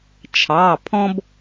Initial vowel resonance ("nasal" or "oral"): oral